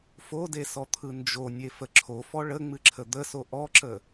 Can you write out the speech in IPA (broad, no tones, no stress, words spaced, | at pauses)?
fodesɔt̪ʰɯ nd͡ʒonʲefə ǁʰofɔ ɭəŋ͡mɨǁʰə d̪əso ʔɔǁə